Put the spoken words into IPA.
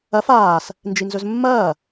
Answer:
ɐf aːs | nd͡ʒinzɵzmːɐː

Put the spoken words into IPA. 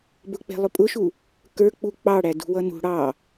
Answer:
bʊk͡pɛ̤ lˠʊpʼʊʃu | kə˞k͡pu k͡pɑɽæ dṳwʌnṳ ɽɑ

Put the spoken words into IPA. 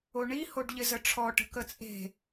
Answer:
oɳihoɖʎɪ zəʈ͡ʂʰɔʈə̤ kət͡sʼe̤

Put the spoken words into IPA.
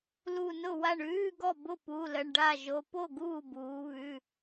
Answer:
lu˧˩nʊ˥˩wa˥˩ɳ ʉː˧˥˧ɡɔ˥˩ bʊ˥˩pu˩˧˩ lə˩˧˩ɳɖa˥˩ʒo˩˧˩ po˥˩ ɡuː˥˩buː˩˧βʉ˩˧˩

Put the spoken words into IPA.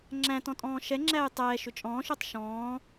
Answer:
ŋ͡ǁæ̃ tɔ̃tʼɔ̃ːʃɛŋ͡ǁæːj tˤɛːʃʏ t͡ʃʼɔ̃ːʃotˤ ʃɔ̃ː

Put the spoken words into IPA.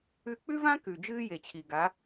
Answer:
ʉ˧k͡pʉ˦vã˦ kʉ˨ d͡ʒɨː˦je˨t͡ɕʰi˨ ɡa˨˦

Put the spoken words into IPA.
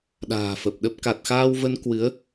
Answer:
ɗa̤ː˨˩fə˨˩p̚ɗə˦˥p̚ ka˨˩t̚xaː˧wvə˧n kwɨ˨˦ə̯

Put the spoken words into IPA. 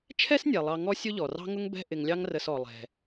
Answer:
t͡ʃʰɛ˥snʲɛ˩lˠɑ˨ ŋɔ˦ sʲʊ˦ʎɔ˩rɑ̤˦ŋʊ˦ŋ bɛ̤˦ʔɪ˨ŋlʲɑ˦ŋ rə˨sɔ˩lˠɛ̤˩

